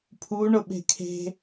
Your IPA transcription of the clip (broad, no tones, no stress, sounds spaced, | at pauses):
pʰ u ɳ ʊ ɓ e̤ kʰ e̤